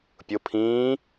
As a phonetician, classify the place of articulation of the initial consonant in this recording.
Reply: labial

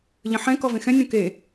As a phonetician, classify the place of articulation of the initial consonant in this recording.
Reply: palatal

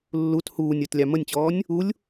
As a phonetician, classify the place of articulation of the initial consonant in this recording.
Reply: alveolar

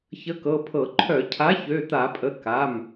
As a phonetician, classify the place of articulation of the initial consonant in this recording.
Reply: palatal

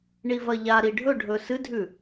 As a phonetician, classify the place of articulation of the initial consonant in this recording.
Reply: retroflex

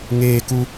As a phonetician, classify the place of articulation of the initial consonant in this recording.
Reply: velar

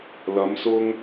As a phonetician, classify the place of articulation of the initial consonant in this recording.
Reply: alveolar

